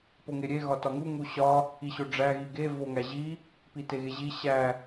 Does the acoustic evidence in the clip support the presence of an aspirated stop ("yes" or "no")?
no